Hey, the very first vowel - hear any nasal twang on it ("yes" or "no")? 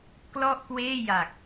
no